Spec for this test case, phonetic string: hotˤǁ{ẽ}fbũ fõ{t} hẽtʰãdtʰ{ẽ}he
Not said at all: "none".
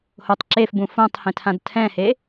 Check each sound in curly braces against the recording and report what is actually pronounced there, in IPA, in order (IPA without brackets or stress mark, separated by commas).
e, tˤ, ɛ̃